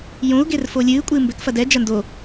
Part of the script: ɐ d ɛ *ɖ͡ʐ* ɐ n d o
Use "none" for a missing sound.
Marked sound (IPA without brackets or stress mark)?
d͡ʒ